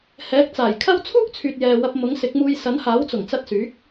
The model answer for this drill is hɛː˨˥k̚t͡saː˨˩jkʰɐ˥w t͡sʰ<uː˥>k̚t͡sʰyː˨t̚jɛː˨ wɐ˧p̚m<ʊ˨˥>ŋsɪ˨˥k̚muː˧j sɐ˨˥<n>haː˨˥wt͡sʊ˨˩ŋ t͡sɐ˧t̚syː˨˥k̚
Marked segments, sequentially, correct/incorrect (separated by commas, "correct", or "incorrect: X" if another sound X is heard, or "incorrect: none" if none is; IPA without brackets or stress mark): correct, correct, correct